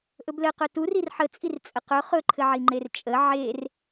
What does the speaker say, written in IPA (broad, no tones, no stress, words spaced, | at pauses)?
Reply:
ʔɵblɘqɵ tu rirħət͡sʼir t͡sʼəqɵ χɵǃʰɘʕi ŋ͡ǃert͡ʃʼə ʕer